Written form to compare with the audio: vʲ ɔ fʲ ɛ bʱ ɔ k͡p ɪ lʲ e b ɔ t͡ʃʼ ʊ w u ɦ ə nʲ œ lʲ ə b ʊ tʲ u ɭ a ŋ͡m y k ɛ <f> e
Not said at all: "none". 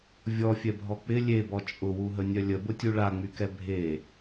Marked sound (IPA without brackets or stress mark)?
bʱ